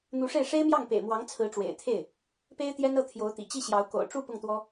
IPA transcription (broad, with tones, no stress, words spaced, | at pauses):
n̪u˧˥ʂe˥˩ɪ̯ ʂe˥ɪ̯mjɑ˥˩ŋ pḛ˨˩ɪ̯mwɑ˧˥ŋ t͡sʰɹ̩˧˥ʈ͡ʂwḛ˨˩ɪ̯t̪ʰe˥˩ɪ̯ | pe˥ɪ̯t̪jɛ˥nɤ˥˩ t̪ʰjo˧˥ʊ̯t̪ḭ˨˩ t͡ɕi˥˩ɕjɑ˧˥ʊ̯ ko̰˨˩ʊ̯ʈ͡ʂu˥˧ pʊ˥˩ŋt̪wɔ˥